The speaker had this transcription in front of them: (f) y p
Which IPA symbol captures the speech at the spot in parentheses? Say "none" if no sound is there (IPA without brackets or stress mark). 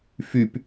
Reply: f